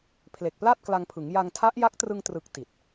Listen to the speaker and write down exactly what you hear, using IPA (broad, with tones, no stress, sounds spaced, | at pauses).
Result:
pʰ l e˨˩ k̚ p l a˥˩ t̚ k l a˧ ŋ pʰ ɯ˩˦ ŋ j a˧ ŋ tʰ a˦˥ ʔ j a˦˥ k̚ t r ɯ˧ ŋ t r ɯ˨˩ k̚ t i˨˩ t̚